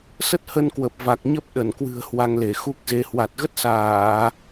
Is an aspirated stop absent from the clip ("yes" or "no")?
yes